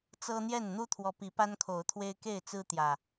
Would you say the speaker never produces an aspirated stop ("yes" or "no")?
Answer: no